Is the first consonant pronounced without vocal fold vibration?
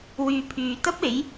no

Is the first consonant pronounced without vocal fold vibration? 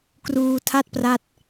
yes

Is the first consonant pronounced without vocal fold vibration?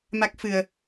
no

